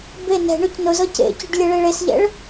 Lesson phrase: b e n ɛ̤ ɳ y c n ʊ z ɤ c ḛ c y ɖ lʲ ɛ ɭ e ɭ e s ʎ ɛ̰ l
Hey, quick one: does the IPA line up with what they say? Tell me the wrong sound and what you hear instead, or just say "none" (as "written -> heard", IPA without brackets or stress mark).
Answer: l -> ɭ